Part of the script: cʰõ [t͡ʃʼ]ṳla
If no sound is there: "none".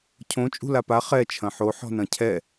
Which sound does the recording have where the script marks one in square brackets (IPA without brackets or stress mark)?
t͡ʃʼ